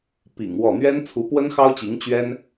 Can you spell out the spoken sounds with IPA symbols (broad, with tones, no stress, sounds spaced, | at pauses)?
p ḭ˨˩ ŋ w ɔ˥˩ n̪ ɥ ɛ˥ n t͡sʰ u˧˥ p w ə˥ n x ɑ˥ ʊ̯ t͡ɕ i˧˥ ŋ t͡ɕ ɥ ɛ˥ n